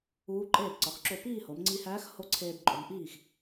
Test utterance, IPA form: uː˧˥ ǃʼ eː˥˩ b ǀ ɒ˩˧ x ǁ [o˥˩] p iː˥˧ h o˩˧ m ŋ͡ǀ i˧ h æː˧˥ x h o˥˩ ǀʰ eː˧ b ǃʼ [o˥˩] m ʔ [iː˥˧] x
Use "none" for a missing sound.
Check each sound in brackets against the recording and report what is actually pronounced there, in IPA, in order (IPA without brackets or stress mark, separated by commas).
o˥˩, o˩˧, iː˥˩